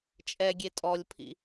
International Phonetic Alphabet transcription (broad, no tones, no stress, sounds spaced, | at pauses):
t͡ʃʼ ɛ ɡʲ e tʼ ɔ lʲ pʰ ḭ